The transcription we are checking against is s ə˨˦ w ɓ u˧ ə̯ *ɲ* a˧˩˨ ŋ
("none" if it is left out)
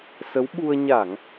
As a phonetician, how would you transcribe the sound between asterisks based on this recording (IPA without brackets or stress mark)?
ɲ